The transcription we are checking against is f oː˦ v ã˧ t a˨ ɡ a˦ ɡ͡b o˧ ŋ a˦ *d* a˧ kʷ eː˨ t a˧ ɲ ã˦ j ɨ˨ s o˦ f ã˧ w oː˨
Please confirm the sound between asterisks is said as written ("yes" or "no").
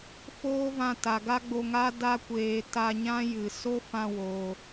yes